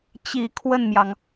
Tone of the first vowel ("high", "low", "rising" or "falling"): low